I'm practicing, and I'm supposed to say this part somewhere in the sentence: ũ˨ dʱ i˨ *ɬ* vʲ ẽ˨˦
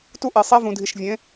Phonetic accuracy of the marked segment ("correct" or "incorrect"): incorrect